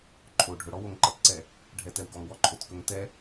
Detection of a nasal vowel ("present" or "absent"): absent